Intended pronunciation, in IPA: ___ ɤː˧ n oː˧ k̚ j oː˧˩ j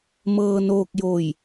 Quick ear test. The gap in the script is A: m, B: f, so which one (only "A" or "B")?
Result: A